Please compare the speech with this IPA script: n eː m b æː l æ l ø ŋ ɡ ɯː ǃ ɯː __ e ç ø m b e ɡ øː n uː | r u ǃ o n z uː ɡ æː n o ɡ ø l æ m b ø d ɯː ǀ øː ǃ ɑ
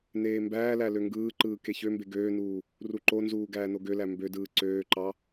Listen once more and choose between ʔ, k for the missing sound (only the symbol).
k